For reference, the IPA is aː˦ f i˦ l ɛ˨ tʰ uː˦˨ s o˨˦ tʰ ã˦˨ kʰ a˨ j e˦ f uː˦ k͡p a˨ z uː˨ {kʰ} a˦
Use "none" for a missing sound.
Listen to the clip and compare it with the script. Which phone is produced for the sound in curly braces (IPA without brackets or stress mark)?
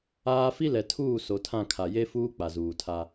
tʰ